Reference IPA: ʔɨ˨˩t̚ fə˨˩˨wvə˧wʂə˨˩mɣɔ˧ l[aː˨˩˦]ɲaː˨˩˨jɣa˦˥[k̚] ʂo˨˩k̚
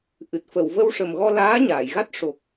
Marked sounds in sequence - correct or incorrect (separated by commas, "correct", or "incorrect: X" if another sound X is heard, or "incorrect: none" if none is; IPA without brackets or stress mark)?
incorrect: aː˧˥, incorrect: t̚